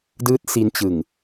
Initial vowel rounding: unrounded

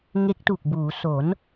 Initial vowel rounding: unrounded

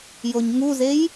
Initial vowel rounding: rounded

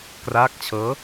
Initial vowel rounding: unrounded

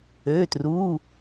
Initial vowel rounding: rounded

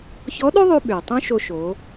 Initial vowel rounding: rounded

